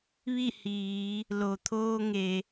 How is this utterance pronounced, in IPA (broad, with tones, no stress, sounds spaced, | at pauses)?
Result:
ʋ i˥˨ h iː˩˧ | l o˩ t̪ʰ oː˧ ŋ e˩